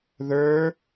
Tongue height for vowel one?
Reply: mid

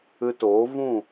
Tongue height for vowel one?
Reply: high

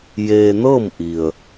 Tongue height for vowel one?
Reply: mid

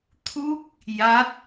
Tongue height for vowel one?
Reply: high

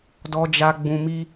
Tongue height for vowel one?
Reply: mid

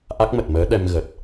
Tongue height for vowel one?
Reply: low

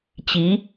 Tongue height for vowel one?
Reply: high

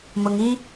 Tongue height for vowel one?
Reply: high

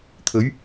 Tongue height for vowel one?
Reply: mid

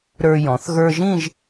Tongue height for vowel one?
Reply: mid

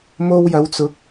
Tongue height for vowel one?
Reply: mid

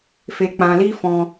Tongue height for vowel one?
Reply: mid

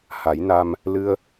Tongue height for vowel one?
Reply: low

